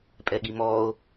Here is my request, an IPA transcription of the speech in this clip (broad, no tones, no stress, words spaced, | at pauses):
pʼɛɠimɔːo̯